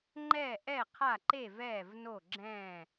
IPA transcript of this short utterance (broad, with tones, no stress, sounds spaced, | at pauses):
ŋ͡ǃ ɛː˥˩ ʔ ɛ˥˩ qʰ a˥˩ ǃ e˥˩ v ɛː˥˩ v n o˥˩ ɡ͡ǁ ɛ̃ː˥˩